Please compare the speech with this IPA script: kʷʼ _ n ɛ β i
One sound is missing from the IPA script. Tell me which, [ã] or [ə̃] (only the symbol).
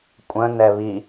ə̃